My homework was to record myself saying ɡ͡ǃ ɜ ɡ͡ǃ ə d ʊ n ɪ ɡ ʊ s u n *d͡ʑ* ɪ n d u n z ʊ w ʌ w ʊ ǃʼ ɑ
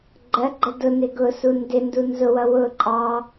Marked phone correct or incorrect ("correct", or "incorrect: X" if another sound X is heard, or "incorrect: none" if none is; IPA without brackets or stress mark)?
incorrect: d